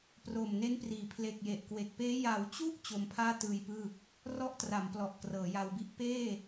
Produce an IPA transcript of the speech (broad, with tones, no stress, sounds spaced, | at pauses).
p r oː˨˩ m n e˦˥ n p r iː˨˩ pʰ l e˨˩ k̚ j e˨˩ ʔ k w e˨˩ k̚ p eː˦˥ j a˩˦ w t͡ɕ u˦˥ ʔ t͡ɕ o˧ m pʰ aː˥˩ t ɯː˧ j p ɯː˥˩ | r ɔ˥˩ ʔ t r a˩˦ m p l ɔ˨˩ ʔ k r ɤː˩˦ j a˧ w b i˦˥ ʔ p eː˥˩